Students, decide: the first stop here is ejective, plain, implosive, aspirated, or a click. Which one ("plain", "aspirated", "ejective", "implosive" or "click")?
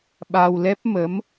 implosive